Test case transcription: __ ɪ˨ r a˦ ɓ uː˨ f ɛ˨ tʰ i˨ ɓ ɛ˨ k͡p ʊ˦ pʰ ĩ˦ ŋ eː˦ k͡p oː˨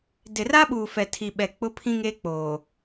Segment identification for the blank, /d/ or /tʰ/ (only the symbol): d